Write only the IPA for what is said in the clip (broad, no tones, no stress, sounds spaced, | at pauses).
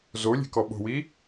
z o lʲ e̤ k ɔ ɓ o̤ w i